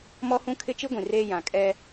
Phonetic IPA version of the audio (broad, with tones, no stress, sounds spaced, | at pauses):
m ɔ˦ h ũ˦ kʰ ɪ˦ t͡ʃ i˦ ɡʷ ĩ˨ r eː˦ j ã˨ kʼ ɛ˦